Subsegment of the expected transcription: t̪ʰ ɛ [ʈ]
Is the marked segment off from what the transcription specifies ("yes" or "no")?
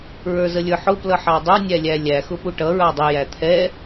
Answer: yes